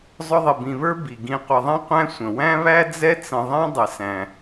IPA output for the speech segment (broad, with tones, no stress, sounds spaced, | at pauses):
zˤ ʊ˦ ðˤ ɪ˨ b ĩ˨ β ə˞˥ b i˩ ɡ ĩ˨ qʷ ʌ˨ ðˤ ɛ̃˥ qʷ æ̃˥ sʷ ə̃˩ w æ̃˥ β æ˥ d͡z ɛ˦ t͡s ə̃˨ ðˤ ɛ̃˦ dˤ ɪ˩ s æ̃˩